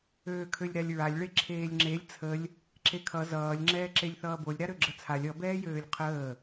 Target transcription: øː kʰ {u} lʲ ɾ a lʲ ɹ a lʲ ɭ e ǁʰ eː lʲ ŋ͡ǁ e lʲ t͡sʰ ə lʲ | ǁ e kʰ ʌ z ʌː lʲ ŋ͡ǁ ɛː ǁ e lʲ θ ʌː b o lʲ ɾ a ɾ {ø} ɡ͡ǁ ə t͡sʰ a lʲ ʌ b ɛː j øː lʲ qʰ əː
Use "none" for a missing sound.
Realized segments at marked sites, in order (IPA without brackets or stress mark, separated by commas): ø, ø